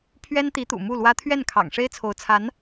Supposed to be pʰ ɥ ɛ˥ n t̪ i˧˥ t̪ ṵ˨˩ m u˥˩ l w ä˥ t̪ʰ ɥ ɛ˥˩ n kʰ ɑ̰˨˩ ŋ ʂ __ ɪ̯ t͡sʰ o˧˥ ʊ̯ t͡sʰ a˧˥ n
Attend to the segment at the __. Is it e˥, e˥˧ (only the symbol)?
e˥